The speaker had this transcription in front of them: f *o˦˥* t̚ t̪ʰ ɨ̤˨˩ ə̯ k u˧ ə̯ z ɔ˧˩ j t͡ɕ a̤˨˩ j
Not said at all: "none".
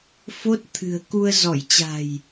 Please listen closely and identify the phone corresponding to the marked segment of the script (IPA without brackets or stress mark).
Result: o˦˥